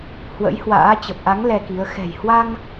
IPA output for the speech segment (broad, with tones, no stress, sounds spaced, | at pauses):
h w ə̰˧˥ j h w a̰ː˧˥ t͡ɕ ə˨˩ p̚ ʔ a˨˦ ŋ l ɛ˧ k i˨˦ ə̯ x ɛ̤˨˩ j h w a˧ ŋ